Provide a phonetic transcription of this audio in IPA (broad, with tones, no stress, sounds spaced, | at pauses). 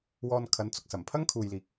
w ɔː˧ n kʰ ɐ˨˥ n t͡s ʊ˨ k̚ s ɐ˨˩ m pʰ ɐ˥ ŋ kʰ uː˨ j l iː˨ k̚